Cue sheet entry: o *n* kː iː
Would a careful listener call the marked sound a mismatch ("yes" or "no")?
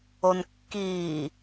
no